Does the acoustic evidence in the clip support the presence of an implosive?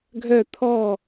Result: no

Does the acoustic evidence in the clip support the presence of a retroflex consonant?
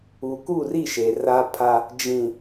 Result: no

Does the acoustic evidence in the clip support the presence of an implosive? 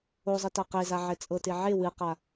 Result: no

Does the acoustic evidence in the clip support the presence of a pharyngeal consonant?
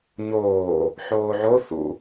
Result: yes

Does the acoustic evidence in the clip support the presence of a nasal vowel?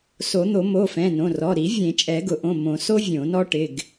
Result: yes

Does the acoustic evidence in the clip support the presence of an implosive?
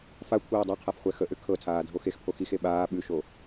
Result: yes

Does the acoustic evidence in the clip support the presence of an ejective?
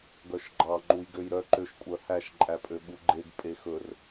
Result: yes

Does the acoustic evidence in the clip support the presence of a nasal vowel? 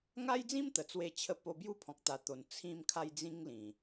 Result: yes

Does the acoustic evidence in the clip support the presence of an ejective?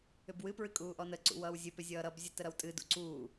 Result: yes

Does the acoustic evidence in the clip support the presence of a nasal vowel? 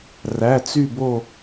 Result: no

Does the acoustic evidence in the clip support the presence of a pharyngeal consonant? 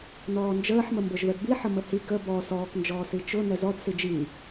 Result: yes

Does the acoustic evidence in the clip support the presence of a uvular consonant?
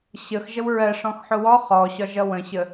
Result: yes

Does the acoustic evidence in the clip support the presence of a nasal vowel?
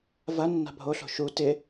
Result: no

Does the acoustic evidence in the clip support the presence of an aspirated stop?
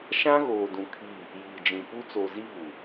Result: yes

